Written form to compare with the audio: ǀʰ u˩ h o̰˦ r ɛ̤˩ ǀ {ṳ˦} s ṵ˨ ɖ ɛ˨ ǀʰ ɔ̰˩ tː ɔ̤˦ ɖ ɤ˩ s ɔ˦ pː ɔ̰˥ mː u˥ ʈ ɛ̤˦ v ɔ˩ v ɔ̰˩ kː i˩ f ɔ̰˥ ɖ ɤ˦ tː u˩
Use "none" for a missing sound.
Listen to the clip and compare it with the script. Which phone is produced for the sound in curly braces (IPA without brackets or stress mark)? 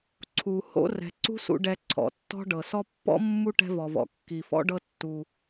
ṳ˦